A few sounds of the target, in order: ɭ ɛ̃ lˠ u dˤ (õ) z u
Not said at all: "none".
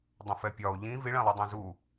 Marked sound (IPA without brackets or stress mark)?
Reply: õ